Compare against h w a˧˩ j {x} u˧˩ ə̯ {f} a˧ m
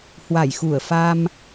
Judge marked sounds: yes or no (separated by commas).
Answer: yes, yes